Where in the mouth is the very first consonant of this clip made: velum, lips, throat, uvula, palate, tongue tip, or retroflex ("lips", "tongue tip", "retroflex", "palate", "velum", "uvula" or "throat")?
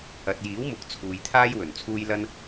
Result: tongue tip